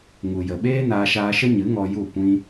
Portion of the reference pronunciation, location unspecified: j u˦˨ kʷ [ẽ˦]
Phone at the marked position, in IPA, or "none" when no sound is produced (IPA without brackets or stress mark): ĩ˦